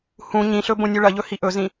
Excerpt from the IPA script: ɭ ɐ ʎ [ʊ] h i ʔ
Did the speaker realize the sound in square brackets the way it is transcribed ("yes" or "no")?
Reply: no